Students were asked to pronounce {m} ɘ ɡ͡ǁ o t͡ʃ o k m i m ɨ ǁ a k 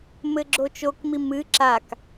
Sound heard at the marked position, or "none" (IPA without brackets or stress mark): m